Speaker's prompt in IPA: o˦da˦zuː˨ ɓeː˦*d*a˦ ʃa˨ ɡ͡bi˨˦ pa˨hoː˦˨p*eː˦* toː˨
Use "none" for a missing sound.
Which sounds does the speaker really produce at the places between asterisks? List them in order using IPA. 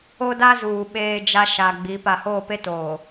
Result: d͡ʒ, e˦

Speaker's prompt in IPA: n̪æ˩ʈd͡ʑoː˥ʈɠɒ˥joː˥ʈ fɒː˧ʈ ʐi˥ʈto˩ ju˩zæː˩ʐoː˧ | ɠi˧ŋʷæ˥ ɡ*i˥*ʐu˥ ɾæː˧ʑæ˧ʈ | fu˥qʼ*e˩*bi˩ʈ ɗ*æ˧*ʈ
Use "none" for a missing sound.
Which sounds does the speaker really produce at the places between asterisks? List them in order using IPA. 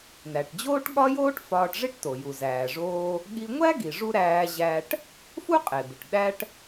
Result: i˩, e˩, æ˧

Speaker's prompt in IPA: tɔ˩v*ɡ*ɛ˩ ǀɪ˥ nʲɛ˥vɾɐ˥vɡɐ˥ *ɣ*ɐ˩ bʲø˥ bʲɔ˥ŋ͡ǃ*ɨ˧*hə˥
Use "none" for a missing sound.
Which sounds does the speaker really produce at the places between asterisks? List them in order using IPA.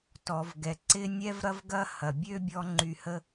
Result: ɡ, h, y˧

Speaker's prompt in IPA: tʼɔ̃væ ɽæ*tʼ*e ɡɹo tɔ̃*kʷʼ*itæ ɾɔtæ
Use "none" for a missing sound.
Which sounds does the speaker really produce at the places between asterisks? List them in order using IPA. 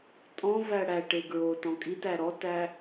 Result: ʈ, kʼ

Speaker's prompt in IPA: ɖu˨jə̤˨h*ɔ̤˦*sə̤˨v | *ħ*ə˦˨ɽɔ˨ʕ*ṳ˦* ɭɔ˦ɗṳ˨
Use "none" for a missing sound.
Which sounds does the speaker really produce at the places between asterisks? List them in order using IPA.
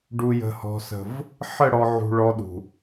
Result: ɔ̤˨, ħ, ṳ˨

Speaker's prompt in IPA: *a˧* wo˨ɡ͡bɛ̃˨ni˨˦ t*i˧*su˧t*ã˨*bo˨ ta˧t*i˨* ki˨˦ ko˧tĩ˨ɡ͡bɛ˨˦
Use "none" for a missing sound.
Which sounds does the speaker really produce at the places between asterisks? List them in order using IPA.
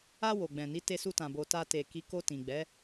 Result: a˧, e˧, ã˨, e˨

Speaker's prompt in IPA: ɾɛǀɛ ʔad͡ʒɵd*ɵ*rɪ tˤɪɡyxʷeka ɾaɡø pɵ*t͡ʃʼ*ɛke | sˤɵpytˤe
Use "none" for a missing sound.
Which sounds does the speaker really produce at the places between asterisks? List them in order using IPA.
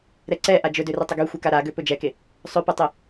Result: ø, d͡ʒ

